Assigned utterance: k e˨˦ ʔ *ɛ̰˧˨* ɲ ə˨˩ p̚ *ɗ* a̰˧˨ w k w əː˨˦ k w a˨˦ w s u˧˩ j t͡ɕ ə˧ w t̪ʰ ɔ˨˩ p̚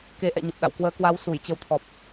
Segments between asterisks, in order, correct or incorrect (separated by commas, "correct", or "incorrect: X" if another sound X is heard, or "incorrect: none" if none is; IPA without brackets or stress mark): correct, correct